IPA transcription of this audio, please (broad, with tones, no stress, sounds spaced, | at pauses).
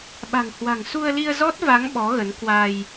ɓ a̤˨˩ ŋ h w a̤˨˩ ŋ s u˧ ə̯ l i˧ ə̯ z ɔ˦˥ t̚ v a˨˦ ŋ ɓ ɔ˨˦ ɣ ə˨˦ n k w a˧ j